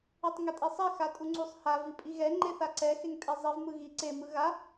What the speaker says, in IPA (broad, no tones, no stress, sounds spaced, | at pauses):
i tˤ ŋ ɛ tʼ i sˤ ɛ x a tʼ u ŋ͡ǀ u sˤ h a v i pʼ i ɣ ɛ ŋ͡ǃ e θ a ǀ ɛ x e ŋ tʼ e zˤ i v m ɯ ɣ i ǀ e m ɯ ɣ a